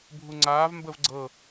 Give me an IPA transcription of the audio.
bʱ u ŋ͡ǀ aː v m b ə v ɡ͡ǀ ɤ

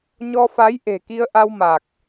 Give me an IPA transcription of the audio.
ɲ ɔ˧ f a˨˦ j ʔ e̤˨˩ k i˧ ə̯ ʔ a˧ w m a˨˩ k̚

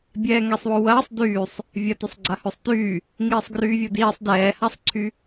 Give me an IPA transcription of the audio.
bʲ ɛː ŋ ɛ sˤ w ʊ w ɐː sˤ d yː sˤ | vʲ ɐ t ø sˤ ɡ͡ǀ a h ø sˤ t yː | ŋ iː sˤ ɡ r yː vʲ o d iː sˤ d ɛː h a sˤ ǀʰ y

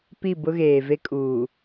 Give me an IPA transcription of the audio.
p i˦˨ b ʊ˦ ɣ eː˨ v e˦ kʼ uː˨

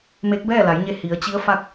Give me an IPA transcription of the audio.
m e˧˥ k̚ b ɛː˥˨ l a˩˧ j ɲ e˧ h i˩˧ ə̯ t͡ɕ i˧˥ ə̯ f a˥˨ k̚

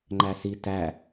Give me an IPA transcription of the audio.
ŋ͡ǃ æ s i t æ

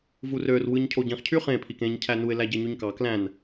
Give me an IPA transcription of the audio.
v u r ø r w ɯ ɲ cʰ o ɟ ĩ χ cʰ y χ ẽ pʰ i k ẽ ɲ cʰ æ n u ɪ̯ l æ ɟ e ɲ y ɲ k ɑ k l æ̃ n

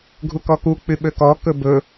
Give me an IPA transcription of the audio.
ɡʱ u k ɔ k u k͡p y ɓ ø k ɔ k ɵ b ɵ

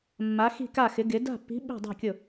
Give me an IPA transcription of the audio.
mː a˨˥ x i̤˥˩ k a˥˩ x ɪ˩˧ ɡ ɪ˩˧ d a̤˥˩ pː i̤˨˥ ɓ i̤˥˩ dˤ o̤˥˩ kʲ ʊ˥˩

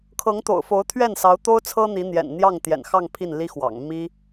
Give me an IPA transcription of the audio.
kʰ ɤ˧˥ ŋ t̪ o̰˨˩ ʊ̯ f o˧˥ ʊ̯ t̪ʰ ɥ ɛ˥˩ n s ɑ˧˥ ʊ̯ t̪ o˥ ʊ̯ t͡sʰ ɤ˥ n̪ i˧˥ n̪ j ɛ̰˨˩ n n̪ j ɑ˥˩ ŋ t̪ j ɛ̰˨˩ n x ɑ˥˧ ŋ pʰ i˥˩ n l i˥ x w ɑ̰˨˩ ŋ m i˥

